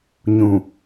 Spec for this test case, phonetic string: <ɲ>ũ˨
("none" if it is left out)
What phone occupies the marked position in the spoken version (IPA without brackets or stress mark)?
ɲ